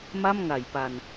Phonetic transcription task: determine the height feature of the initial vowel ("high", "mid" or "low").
low